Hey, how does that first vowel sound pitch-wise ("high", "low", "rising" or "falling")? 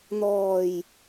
low